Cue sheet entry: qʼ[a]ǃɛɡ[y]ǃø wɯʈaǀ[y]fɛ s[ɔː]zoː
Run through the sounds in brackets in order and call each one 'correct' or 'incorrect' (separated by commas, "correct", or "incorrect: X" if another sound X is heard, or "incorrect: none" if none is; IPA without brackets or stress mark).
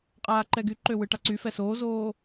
incorrect: aː, correct, correct, incorrect: oː